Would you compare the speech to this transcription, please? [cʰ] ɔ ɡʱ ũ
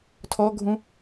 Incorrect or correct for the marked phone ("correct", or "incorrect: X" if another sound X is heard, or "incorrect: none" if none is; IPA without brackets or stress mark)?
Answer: incorrect: tʰ